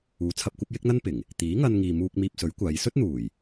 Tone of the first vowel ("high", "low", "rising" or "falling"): rising